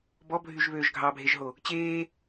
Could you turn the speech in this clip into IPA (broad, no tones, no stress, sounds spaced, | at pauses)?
b ɔ bʱ y ʒ β øː ʒ ɡʱ ɑ bʱ e ʒ ɦ o | t͡ɕ eː